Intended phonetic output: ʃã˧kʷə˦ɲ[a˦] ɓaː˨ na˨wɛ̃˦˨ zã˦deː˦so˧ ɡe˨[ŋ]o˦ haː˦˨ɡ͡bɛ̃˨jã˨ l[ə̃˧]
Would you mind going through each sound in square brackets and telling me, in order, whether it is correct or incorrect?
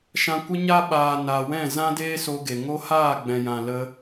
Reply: correct, correct, incorrect: ə˧

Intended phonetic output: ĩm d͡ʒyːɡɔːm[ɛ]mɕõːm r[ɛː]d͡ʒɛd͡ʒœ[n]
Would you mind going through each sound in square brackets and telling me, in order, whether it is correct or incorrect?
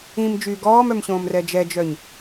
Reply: incorrect: œ, incorrect: ɛ, incorrect: ɲ

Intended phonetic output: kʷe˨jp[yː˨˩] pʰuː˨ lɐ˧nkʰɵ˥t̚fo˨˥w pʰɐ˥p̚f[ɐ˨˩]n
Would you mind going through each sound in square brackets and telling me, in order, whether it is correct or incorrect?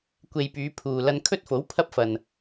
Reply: incorrect: yː˨˧, incorrect: ɐ˨

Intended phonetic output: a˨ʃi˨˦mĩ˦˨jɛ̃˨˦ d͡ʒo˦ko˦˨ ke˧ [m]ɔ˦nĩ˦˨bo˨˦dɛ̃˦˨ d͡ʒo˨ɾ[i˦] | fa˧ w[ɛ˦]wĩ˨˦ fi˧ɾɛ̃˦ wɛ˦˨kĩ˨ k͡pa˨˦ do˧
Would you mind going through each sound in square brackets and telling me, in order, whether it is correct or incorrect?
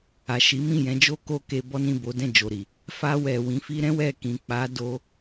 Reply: incorrect: b, incorrect: i˨, incorrect: ɛ˨

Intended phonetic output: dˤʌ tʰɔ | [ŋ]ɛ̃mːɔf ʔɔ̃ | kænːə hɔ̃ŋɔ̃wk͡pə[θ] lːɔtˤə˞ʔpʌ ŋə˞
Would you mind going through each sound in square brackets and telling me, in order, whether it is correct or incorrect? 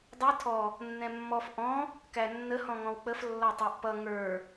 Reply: incorrect: nː, incorrect: f

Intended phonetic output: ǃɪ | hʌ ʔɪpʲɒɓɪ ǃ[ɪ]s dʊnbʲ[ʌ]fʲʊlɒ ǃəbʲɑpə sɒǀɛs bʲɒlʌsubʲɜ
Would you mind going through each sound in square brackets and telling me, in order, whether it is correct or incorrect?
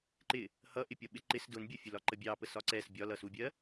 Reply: correct, correct

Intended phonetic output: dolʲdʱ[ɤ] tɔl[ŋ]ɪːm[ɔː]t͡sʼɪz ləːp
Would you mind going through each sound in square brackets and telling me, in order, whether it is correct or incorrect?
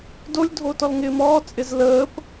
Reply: incorrect: o, correct, correct

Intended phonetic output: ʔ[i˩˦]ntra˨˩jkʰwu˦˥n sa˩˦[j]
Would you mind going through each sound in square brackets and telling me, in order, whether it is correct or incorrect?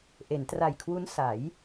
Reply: incorrect: e˩˦, correct

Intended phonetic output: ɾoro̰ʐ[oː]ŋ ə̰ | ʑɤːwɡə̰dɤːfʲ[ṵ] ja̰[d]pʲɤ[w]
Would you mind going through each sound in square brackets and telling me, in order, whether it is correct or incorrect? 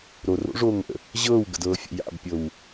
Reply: correct, incorrect: o̰, incorrect: b, correct

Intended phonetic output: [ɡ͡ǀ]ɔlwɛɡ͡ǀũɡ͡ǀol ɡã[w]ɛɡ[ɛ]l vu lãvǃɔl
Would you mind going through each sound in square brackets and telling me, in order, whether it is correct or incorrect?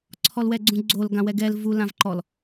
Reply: incorrect: ǀʰ, correct, correct

